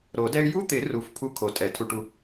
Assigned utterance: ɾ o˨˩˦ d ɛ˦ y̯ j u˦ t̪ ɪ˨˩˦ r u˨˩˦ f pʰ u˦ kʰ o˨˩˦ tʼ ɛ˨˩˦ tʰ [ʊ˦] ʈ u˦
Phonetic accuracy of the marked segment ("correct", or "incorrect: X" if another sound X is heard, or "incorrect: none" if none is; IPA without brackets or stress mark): incorrect: u˦